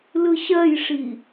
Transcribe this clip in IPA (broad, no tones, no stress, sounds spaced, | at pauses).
l ɯ ɕ ɜ j ʂ i